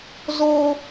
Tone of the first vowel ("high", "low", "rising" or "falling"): high